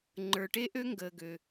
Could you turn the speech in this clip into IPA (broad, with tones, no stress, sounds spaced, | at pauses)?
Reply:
ŋ͡ǃ ə˞˨ ʈ e˦ ʔ ø˦ ŋ ɡ əː˨ ɡ ø˨